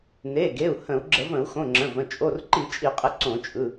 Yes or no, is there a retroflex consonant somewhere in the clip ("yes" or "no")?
no